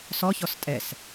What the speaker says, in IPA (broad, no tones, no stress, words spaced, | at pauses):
sɔ çɔstʼɛs